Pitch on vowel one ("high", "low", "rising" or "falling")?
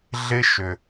high